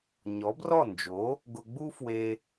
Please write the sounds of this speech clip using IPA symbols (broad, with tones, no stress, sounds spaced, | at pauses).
ɲ ɔ˩˥ b r ɔ˥˩ n d͡ʒ o˩˥ | ɡ ʊ˧ ɡ͡b u˥ f w e˧